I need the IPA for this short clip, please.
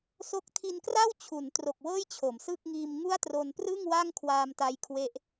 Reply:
s o˦˥ k̚ tʰ i˧ n k r a˥˩ w t͡ɕʰ u˩˦ n t r o˨˩ k̚ w ɤː˥˩ j t͡ɕʰ o˩˦ m s ɯ˥˩ k̚ ŋ iː˧ m ŋ u˥˩ a̯ t r o˧ n p r ɯ˥˩ ŋ w a˥˩ ŋ kʰ w aː˧ m t a˦˥ j kʰ w e˦˥ ʔ

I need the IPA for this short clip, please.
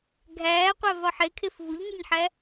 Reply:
ɡʱ æː qʷ æ v ɒ ħ e kʰ e f v u ʎ ɲ i ɲ ħ æ

